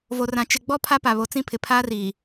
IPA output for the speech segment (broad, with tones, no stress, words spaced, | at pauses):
vo˨rã˨ t͡ʃɪ˨ɡ͡bɔ˦ pʰa˦pa˨βo˨t͡sĩ˦ pʰɪ˨pʰaː˦riː˨